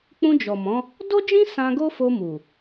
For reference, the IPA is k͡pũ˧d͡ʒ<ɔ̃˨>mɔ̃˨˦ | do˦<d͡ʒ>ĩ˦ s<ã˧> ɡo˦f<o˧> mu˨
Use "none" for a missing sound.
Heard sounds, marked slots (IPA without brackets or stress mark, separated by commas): ɔ˨, d͡ʒ, ã˧, o˧